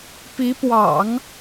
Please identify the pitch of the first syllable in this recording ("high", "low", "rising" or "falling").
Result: rising